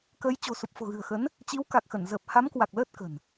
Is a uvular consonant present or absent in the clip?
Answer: absent